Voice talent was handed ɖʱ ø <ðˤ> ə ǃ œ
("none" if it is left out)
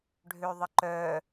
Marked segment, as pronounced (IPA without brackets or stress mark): ðˤ